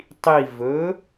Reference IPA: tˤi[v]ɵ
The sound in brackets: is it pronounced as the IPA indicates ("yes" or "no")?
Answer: yes